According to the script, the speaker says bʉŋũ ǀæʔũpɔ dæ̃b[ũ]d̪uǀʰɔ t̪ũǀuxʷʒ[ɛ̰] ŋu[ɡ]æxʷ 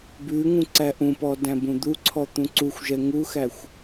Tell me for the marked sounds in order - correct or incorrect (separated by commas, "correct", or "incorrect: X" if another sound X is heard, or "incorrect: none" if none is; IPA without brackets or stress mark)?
correct, incorrect: ɛ, incorrect: x